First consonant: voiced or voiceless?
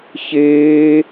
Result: voiceless